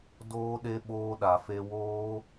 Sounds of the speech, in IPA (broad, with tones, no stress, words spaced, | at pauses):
doː˧ɗe˧ ɓoː˧ɗa˨fe˧woː˦